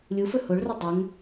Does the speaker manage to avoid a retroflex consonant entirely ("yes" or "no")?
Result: no